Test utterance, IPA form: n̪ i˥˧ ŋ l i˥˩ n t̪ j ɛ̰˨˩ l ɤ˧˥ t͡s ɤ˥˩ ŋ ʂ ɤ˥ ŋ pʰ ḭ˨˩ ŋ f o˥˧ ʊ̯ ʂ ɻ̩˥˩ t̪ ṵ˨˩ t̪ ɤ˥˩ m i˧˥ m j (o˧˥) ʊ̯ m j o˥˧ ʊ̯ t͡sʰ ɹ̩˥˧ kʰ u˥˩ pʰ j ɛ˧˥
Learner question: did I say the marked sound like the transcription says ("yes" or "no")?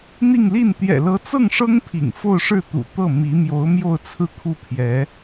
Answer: yes